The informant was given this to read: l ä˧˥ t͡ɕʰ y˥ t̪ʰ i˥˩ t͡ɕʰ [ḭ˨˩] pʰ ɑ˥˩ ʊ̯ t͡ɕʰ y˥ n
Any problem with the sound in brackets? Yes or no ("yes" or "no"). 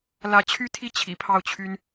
no